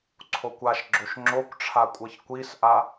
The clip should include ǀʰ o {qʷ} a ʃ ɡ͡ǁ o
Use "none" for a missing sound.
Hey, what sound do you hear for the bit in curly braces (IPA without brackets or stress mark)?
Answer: kʷ